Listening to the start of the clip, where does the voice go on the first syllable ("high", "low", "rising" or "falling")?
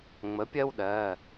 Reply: rising